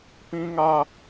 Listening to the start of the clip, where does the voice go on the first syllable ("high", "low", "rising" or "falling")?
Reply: high